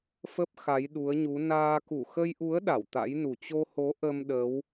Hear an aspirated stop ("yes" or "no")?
no